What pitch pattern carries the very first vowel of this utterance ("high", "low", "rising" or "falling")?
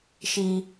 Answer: high